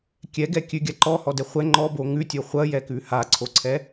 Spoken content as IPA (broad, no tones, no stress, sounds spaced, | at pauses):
kʲ ɛ ɡ ɛ kʲ ʉ ɡʲ a ǃ ɔ h ɔ d ɛ χʷ ɛ ŋ͡ǃ ɔ b o ŋ ʉ tʲ o χʷ ɐ j ɛ k ʉ h a ǀʰ o ǀʰ ɛ